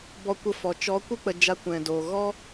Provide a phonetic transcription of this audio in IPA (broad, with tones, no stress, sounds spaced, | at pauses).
b ɔ˧ kʷ ə˧ f ɔ˨ t͡ʃ ɔ˨˦ kʷ ɨ˦ k͡p ə˧ d͡ʒ a˧ kʷ ɛ̃˨ d oː˨ ɣ ɔ˦